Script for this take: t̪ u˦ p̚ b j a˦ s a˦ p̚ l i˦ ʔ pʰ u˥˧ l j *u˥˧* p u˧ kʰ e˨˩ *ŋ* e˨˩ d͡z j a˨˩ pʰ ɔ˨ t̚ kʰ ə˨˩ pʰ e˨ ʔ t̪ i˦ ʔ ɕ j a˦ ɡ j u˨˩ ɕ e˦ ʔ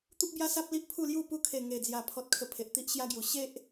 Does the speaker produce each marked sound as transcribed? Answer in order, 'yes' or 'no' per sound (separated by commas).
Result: yes, yes